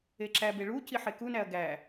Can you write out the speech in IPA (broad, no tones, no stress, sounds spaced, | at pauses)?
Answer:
e ǁ æ b e ɭ u c i ħ e k u n æ ɐ̯ ɡ æ